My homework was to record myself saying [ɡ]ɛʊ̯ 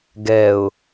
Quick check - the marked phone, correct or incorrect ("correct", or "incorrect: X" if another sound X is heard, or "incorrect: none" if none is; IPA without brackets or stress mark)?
correct